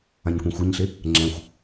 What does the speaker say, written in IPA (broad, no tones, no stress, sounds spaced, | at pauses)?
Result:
ã ɲ kʷ ẽ xʷ ɛ ɲ ɬ e | ŋ͡ǁ ɛ̃ xʷ